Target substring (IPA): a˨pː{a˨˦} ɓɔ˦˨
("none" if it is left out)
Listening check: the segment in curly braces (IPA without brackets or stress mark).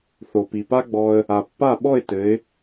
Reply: a˦˨